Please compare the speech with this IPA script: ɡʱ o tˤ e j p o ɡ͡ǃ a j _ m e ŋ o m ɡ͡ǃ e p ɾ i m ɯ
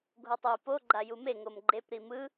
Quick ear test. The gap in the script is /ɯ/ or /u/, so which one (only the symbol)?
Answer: u